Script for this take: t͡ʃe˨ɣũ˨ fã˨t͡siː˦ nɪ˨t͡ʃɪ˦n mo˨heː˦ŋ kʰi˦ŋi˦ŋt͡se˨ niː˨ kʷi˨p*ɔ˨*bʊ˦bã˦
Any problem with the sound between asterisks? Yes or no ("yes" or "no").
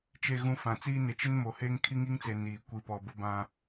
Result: no